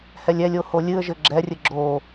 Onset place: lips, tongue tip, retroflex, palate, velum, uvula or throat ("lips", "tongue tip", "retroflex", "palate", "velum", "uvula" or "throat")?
throat